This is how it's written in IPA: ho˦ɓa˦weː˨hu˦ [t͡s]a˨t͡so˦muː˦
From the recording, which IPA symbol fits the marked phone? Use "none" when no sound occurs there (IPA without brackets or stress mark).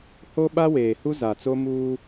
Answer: z